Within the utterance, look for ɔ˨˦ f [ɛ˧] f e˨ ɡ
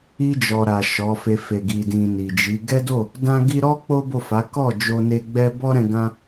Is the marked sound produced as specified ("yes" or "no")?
no